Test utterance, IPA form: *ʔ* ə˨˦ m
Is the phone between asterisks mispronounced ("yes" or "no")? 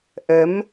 no